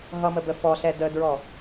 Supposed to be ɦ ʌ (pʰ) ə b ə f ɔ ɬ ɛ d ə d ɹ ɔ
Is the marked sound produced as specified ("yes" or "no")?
no